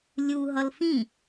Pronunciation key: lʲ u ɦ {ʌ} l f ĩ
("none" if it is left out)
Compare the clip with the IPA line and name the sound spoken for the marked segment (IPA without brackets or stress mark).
ʌ